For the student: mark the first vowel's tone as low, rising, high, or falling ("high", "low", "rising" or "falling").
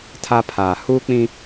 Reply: high